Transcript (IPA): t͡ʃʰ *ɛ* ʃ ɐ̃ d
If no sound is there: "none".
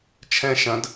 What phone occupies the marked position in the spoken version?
ɛ̃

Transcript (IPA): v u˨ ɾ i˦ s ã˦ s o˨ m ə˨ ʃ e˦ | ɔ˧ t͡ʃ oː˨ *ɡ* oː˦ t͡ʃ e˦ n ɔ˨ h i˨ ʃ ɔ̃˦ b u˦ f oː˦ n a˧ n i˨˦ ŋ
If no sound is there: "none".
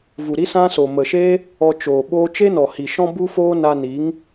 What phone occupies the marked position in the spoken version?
ɓ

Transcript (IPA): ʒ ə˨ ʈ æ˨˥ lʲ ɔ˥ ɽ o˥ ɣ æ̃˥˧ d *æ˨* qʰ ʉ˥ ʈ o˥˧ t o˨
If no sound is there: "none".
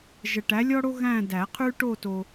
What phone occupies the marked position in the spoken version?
æ˨˩˦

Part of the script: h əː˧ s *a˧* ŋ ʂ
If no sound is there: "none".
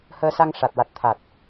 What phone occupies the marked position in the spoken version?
a˧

